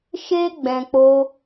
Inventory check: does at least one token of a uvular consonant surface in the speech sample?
no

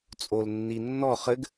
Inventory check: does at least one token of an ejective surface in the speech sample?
yes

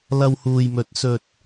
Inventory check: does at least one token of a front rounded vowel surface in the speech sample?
no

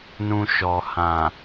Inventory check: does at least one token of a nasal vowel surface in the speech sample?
yes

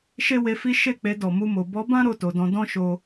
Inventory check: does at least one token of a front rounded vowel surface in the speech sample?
no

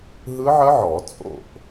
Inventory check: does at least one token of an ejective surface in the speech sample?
yes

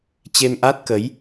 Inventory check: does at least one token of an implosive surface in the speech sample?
no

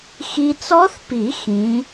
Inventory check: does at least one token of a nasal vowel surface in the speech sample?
yes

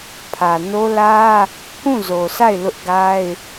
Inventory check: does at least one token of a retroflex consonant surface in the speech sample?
no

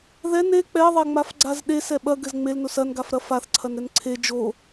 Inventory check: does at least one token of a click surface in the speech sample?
yes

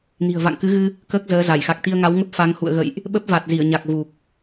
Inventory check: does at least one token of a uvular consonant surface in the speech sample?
no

